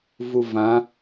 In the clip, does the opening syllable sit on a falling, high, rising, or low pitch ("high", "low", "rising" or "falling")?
low